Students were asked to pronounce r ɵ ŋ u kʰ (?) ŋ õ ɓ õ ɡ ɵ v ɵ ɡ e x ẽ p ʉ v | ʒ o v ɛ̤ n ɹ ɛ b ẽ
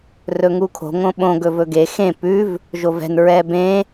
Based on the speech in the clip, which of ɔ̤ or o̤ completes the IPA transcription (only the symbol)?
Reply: o̤